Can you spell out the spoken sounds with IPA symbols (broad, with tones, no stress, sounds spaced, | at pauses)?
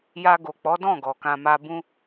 j a˧ ɡ o˨ k͡p ɔ˨˦ d ɔ̃˦˨ ɡ ɔ˨ k ã˧ m a˦ b ũ˧